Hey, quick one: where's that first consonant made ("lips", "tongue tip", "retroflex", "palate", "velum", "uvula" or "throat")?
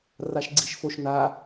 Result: tongue tip